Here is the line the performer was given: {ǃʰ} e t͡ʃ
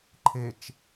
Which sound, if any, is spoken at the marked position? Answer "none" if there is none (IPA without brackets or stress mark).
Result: ǃʰ